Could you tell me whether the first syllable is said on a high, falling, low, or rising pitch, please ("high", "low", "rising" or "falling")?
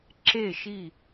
falling